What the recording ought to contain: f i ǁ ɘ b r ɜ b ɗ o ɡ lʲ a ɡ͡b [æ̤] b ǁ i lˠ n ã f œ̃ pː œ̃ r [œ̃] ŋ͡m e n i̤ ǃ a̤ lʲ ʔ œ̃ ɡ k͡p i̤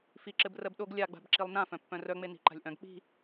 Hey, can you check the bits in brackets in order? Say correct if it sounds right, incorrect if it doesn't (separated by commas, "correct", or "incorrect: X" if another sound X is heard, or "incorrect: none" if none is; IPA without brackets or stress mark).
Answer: incorrect: a̤, incorrect: œ